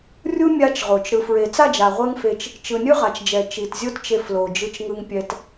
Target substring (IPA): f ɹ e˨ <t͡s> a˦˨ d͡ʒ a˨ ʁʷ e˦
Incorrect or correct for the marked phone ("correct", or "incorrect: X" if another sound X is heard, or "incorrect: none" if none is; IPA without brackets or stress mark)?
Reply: correct